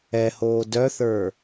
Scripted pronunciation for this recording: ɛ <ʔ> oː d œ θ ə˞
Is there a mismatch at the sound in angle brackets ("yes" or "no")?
yes